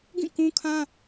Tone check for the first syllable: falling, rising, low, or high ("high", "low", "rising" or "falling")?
falling